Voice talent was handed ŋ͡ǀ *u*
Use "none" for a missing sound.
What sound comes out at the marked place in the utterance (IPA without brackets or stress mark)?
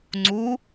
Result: u